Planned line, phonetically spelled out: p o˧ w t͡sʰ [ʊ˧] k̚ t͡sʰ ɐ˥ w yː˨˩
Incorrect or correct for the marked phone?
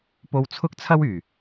incorrect: ʊ˥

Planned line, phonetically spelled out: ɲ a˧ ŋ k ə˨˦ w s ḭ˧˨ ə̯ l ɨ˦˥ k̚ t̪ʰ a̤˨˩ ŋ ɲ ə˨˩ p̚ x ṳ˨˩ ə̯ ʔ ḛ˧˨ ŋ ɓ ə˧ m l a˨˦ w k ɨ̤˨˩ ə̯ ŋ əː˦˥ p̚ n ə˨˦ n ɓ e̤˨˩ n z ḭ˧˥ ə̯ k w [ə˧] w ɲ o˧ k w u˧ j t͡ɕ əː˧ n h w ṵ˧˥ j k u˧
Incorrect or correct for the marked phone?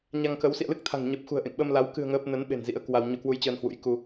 incorrect: a˧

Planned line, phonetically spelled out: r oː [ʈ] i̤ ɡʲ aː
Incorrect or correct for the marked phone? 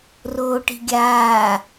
correct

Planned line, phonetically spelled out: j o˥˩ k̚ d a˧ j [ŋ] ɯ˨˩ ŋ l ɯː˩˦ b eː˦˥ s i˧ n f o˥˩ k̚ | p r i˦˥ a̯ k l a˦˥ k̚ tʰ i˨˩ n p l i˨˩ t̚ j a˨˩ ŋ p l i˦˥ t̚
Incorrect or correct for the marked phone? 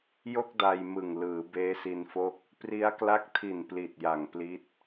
incorrect: m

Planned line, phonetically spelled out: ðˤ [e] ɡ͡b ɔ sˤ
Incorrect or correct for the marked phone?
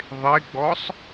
correct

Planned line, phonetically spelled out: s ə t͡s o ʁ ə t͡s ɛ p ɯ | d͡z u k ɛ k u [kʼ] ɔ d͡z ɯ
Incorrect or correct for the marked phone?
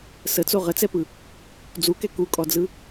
correct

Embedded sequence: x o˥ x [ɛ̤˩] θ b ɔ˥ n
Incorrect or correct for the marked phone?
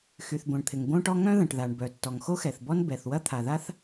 incorrect: ɛ˩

